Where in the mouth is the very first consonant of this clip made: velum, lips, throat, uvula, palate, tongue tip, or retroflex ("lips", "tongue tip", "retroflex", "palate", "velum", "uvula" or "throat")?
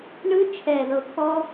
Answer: retroflex